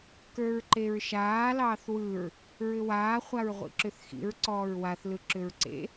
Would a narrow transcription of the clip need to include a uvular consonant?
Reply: yes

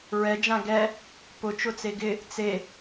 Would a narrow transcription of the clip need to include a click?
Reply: no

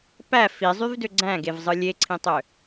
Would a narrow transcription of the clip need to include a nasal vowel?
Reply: yes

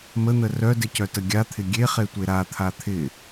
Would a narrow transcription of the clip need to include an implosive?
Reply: no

